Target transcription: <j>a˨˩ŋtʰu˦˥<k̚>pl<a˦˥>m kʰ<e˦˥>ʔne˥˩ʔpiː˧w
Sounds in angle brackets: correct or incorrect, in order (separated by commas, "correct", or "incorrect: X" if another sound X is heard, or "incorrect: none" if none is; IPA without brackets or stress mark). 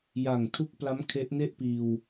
correct, correct, correct, correct